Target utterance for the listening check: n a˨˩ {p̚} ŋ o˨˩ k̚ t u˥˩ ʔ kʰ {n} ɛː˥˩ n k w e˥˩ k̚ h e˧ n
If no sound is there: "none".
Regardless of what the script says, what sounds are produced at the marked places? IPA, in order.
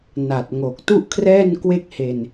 t̚, r

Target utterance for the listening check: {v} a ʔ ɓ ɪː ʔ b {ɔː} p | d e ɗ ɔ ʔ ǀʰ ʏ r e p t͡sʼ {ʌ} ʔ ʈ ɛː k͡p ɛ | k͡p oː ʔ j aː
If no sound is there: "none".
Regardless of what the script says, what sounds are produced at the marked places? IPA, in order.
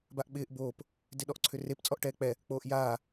b, oː, ɔ

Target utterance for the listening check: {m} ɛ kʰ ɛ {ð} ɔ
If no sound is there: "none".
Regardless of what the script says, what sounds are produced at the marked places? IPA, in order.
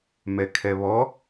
m, β

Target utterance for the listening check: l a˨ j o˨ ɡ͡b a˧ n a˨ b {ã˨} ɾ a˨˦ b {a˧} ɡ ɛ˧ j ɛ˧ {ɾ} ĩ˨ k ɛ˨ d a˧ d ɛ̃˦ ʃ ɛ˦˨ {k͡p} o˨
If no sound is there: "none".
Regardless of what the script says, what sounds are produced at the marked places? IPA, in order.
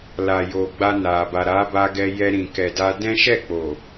a˨, a˧, ɾ, k͡p

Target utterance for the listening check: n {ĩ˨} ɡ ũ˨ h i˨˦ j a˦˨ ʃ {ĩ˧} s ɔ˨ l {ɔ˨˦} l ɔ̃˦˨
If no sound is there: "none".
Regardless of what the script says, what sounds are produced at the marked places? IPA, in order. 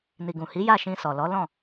i˨, ĩ˧, ɔ˨˦

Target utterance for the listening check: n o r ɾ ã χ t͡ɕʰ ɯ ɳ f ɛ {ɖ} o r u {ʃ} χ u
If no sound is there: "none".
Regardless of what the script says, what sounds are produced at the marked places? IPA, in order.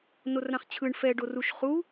ɖ, ʃ

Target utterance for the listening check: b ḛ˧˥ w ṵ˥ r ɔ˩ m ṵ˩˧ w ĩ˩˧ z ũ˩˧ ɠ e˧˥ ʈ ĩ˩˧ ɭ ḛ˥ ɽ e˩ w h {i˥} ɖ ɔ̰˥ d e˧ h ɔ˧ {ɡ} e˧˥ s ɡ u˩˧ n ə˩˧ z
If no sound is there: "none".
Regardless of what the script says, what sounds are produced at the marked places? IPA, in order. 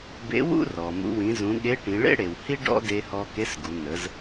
i˥, k

